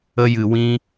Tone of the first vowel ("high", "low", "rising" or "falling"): high